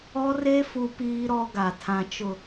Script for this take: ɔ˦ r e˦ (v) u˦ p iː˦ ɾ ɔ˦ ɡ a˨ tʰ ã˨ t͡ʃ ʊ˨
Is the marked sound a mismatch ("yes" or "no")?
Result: yes